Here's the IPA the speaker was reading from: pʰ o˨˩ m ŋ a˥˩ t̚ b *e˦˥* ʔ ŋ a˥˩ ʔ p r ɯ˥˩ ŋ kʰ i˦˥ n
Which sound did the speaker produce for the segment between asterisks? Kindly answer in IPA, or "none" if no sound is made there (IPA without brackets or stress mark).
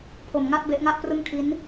e˦˥